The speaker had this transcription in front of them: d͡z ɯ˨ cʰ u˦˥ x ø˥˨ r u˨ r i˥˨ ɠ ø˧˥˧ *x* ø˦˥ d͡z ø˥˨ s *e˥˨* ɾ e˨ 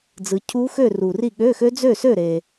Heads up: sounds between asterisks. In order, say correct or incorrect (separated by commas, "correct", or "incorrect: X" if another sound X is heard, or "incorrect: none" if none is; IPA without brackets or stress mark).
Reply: correct, incorrect: ø˥˨